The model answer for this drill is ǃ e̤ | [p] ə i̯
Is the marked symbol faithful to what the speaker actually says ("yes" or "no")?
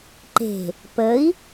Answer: yes